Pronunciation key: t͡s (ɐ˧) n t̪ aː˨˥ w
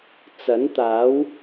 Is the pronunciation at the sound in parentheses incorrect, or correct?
incorrect: ɐ˨˥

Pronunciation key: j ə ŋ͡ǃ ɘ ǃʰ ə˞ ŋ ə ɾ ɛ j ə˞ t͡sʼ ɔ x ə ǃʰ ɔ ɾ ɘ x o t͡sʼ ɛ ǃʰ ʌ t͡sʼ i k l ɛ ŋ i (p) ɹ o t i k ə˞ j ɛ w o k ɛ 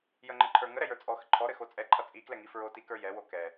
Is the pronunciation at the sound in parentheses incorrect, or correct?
incorrect: f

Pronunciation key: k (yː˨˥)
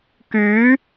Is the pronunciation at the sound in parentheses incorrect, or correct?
correct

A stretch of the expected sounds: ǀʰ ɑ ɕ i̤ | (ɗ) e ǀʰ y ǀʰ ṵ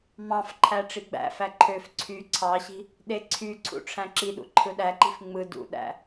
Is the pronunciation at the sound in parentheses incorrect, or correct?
correct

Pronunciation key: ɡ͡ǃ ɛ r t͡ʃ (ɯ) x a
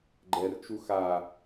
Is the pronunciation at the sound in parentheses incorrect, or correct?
incorrect: u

